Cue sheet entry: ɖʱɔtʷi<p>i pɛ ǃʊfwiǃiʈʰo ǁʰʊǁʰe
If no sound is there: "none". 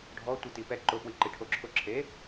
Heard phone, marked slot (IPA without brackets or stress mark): t̪